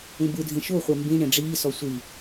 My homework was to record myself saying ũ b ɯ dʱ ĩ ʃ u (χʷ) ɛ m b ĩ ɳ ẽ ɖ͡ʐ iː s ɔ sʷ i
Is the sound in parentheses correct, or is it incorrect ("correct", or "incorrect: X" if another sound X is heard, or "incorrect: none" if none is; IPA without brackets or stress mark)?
correct